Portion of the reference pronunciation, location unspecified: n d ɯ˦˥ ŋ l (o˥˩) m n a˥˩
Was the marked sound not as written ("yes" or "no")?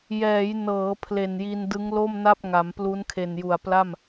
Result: no